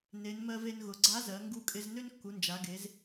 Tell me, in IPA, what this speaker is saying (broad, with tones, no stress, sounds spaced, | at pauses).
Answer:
n e˩˧ n m ɜ˧ v e˧ n ɣ ʊ˩ ɡ͡ǀ a˧˥ z ɜ˩˧ ŋ ɡ u˥ kʼ ɪ˥ z n ø˥ n kː u˩˧ n d͡ʒ a˩˧ ɡ e˩˧ z